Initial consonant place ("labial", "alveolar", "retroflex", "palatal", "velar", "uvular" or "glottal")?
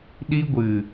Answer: alveolar